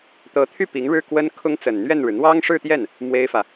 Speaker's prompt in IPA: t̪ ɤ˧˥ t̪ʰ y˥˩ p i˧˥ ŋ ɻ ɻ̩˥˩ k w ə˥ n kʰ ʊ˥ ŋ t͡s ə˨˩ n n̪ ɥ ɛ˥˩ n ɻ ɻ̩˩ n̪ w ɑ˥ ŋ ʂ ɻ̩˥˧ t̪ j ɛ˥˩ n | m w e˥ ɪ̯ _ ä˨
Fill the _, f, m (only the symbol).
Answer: f